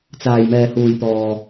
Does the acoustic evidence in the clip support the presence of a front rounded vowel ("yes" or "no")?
no